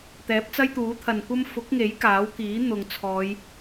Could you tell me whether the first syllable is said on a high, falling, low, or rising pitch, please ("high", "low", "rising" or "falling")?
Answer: rising